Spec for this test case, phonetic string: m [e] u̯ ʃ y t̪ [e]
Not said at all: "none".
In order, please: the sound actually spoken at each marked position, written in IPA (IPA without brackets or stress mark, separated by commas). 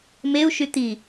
e, i